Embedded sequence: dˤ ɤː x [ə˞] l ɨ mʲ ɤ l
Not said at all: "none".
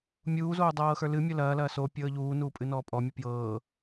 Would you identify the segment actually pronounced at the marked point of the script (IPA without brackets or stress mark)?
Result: ə˞